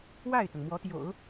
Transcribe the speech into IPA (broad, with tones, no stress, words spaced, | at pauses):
wa˥˩ɪ̯t̪ʊ˩ŋ mwɔ˧˥t̪jo̰˨˩˦ʊ̯